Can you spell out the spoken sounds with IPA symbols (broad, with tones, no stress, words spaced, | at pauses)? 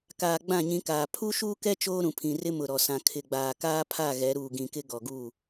kaː˨ ɡ͡bã˦˨ɲĩ˨˦kaː˨ pʰu˦ʃuː˦kɛ˦ t͡ʃoː˦ɾũ˨pʰĩ˨rɪ˦ mʊ˨ɾɔ˨sã˨ kʰɪ˨ɡ͡baː˨kaː˦pʰa˦˨ ɣɛ˨˦ɾuː˨ɡĩ˨kɪ˦ ɡɔ˨ɡuː˦˨